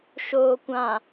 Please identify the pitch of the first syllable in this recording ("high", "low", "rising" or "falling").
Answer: low